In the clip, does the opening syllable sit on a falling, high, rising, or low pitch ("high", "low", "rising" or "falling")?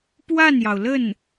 falling